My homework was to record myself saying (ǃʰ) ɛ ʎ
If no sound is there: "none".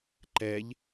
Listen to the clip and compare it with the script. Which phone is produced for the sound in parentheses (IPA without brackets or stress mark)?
ǃ